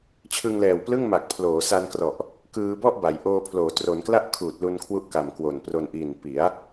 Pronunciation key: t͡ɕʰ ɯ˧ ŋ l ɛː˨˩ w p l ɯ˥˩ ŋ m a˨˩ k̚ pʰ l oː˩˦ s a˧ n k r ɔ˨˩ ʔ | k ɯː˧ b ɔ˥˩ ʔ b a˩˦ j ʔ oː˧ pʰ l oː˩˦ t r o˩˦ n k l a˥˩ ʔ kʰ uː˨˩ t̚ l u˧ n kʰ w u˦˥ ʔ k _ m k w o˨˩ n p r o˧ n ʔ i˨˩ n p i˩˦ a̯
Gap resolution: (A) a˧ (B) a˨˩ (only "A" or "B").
B